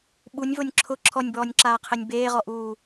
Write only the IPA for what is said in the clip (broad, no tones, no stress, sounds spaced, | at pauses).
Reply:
ɓ u nʲ v o nʲ ǁʰ ʊ ǁʰ ɔ nʲ b ɔː nʲ ǁ aː qʰ e nʲ b eː ʁ ɔ ʔ uː